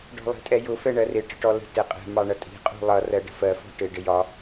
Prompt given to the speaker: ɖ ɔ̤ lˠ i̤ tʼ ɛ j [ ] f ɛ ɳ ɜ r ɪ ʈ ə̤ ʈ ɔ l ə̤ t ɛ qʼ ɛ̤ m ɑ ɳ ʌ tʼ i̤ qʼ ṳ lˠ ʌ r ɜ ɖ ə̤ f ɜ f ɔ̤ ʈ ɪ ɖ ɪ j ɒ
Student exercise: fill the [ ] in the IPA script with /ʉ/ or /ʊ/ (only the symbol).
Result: ʊ